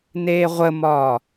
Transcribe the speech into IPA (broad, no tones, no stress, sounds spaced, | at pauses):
n eː ʁʷ ə m ɒː